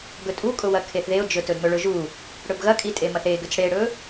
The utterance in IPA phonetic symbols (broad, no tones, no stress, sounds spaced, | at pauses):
ɡ ɵ tʼ u kʼ ʊ w ɐ kʰ e θ ð e ʊ̯ d͡ʒ ɵ t ɵ d m ɵ ɭ ɵ ʒ u | ɽ ɵ b ɣ ɐ kʼ i tʼ e m ɐ θ e ɡ ʏ t͡s ɽ e ɽ ɵ